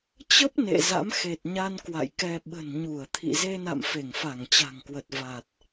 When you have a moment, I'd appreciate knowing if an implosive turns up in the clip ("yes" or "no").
yes